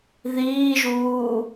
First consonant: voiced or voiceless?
voiced